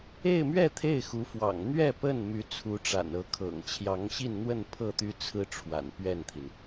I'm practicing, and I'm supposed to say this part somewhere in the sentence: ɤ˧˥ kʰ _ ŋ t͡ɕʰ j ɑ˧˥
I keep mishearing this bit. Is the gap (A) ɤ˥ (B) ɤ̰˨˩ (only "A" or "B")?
B